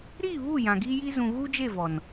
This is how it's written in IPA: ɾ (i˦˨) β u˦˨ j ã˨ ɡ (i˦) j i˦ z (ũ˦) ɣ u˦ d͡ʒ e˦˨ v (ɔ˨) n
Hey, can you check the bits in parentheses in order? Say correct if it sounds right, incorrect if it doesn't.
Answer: correct, correct, incorrect: ũ˨, correct

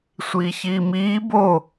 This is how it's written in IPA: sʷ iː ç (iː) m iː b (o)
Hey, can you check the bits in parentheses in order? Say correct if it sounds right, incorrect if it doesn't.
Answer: correct, correct

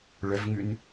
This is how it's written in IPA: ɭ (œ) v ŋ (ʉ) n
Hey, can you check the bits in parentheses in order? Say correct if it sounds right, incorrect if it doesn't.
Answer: correct, correct

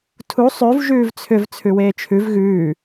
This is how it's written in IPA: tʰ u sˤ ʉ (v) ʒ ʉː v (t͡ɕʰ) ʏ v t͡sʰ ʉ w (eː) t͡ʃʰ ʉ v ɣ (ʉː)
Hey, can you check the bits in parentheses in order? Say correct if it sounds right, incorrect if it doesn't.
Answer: correct, incorrect: t͡sʰ, correct, correct

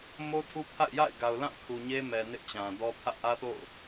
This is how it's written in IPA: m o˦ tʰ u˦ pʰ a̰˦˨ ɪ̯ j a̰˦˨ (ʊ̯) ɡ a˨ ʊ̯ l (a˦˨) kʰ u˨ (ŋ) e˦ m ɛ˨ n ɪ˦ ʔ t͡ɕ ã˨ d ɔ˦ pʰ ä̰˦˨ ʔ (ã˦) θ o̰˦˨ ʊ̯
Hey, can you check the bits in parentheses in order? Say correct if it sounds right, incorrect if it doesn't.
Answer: incorrect: ɪ̯, incorrect: ã˦˨, incorrect: ɲ, incorrect: ä˦

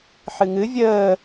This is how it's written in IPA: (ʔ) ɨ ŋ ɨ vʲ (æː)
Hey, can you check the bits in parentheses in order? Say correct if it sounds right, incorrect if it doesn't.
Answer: incorrect: ħ, incorrect: əː

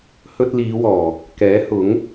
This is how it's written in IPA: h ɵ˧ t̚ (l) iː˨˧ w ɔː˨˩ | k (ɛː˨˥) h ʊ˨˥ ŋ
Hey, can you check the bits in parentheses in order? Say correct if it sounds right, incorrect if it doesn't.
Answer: correct, correct

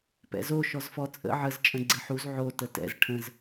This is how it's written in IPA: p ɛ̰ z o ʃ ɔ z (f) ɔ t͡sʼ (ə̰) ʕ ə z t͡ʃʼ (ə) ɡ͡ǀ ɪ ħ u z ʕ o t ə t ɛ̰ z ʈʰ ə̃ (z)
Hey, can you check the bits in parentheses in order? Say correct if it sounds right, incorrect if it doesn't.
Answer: correct, correct, incorrect: ə̃, correct

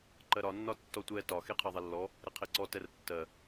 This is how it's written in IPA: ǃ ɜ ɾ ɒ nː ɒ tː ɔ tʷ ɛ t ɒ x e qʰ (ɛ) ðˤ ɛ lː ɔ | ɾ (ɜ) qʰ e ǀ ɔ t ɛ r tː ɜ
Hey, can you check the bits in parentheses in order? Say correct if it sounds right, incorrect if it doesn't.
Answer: incorrect: ɜ, incorrect: ɛ

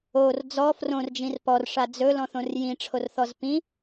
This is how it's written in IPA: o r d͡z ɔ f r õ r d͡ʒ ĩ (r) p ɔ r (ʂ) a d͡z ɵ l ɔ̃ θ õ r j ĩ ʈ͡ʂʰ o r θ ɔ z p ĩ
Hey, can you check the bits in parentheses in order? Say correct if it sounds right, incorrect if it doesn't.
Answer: correct, correct

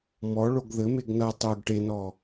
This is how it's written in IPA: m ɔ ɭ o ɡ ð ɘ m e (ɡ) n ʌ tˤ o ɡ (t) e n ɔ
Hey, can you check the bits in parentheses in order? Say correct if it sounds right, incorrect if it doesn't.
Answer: correct, incorrect: ʈ

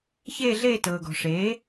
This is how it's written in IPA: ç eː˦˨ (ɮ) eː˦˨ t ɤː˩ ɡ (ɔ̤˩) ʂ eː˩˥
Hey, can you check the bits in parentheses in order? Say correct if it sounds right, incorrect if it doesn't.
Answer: correct, correct

